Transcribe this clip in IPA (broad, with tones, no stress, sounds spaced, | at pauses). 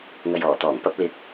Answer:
ŋ ɐ˨ j ɔː˨˩ t̪ ɔː˨˩ ŋ p ɐ˧ p̚ l ɪ˨˥ k̚